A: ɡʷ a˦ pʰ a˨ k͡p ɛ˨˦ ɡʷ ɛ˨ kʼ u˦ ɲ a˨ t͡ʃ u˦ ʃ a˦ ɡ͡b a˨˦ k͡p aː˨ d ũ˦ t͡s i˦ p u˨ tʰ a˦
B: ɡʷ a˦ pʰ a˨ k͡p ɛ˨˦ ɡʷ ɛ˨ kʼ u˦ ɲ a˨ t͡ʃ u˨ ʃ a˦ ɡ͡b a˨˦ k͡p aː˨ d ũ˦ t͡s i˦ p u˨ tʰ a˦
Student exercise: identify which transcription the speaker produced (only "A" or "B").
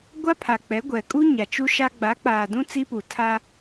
A